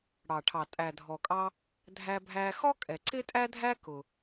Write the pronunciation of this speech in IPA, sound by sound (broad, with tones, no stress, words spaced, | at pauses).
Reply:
ɽɑ˩ʈʰɑ˩ tʼæ˩dʱɔ˩kʼɑ˧ | dʱæ˧bʱæ˧ xɔ˥kʼɛ˩ ǀɪ˥tʼæ˥dʱæ˥ kʊ˩